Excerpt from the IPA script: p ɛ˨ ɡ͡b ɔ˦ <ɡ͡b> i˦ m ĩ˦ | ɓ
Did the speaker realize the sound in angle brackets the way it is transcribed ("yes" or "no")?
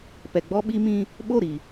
no